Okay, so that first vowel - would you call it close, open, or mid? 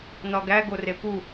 open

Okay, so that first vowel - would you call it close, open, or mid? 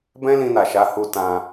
mid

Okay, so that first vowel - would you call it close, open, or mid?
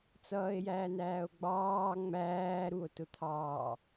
mid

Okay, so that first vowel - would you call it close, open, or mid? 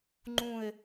close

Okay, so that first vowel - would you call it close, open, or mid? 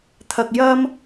open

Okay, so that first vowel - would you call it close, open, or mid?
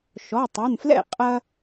mid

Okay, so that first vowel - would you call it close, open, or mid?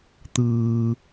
close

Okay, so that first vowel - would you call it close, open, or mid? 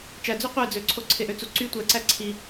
open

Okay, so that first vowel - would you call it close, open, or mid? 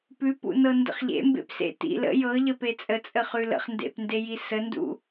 close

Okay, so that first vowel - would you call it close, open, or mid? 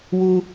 close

